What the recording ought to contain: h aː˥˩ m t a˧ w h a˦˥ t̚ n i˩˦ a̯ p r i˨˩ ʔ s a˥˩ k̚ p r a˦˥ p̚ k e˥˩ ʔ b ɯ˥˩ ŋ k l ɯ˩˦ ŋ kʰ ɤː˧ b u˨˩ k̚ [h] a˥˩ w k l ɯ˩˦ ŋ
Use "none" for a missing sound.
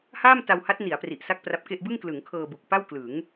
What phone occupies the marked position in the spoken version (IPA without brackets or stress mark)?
p